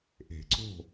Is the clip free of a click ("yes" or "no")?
no